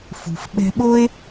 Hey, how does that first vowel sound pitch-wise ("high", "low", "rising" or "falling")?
low